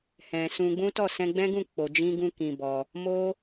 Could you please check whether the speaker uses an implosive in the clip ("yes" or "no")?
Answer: no